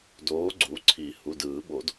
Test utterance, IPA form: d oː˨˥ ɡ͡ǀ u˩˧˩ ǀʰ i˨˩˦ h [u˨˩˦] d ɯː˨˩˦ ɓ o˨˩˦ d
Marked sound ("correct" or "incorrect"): incorrect